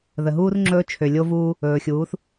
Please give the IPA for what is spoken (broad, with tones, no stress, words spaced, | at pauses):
ðə˨ɦuː˦rŋ͡ǁɵː˦ t͡ʃʰø˨lʲo˦vuː˦ | ɵː˨xʲuː˨˦θ